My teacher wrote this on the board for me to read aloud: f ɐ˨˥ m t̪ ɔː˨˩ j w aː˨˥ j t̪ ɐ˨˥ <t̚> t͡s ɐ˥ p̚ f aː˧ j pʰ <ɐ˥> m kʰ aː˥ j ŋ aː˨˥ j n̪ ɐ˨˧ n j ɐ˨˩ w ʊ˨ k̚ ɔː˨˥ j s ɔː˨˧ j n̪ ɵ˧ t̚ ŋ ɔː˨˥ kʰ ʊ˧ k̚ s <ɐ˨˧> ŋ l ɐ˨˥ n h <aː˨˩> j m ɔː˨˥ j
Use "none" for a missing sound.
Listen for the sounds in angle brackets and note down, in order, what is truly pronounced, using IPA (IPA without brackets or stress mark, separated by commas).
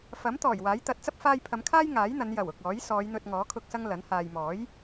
t̚, ɐ˨˧, ɐ˥, aː˨